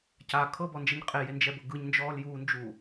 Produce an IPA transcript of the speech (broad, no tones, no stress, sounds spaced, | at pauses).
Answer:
c a kʰ ɤ b ɔ n d͡ʒ ɛ ɲ qʼ e j e n d͡ʒ ɛ b ɤ ɡ ɯ ɲ n d͡ʒ ɔː l j uː n d͡ʒ uː